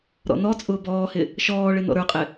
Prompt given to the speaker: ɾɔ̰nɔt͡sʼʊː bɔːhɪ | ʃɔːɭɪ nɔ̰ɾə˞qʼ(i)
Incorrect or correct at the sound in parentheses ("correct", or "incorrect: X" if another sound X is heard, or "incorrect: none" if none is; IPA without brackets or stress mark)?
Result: incorrect: ɪ